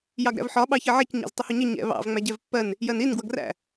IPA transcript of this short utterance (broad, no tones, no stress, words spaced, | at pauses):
jɑɡɾæ̰vħɒ ɓɑçɜʕɛc ɲɑ̰ztˤəhuɲə ɲɛ̰ βɑ̰v ŋ͡mæɟɛvpːɜn | jɜnin ɡwʌɡræ̰